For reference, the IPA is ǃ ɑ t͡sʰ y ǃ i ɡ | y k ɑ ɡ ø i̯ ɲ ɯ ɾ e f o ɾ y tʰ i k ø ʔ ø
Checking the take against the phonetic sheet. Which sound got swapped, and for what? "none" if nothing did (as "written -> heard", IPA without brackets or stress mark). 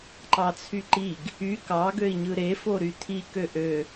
none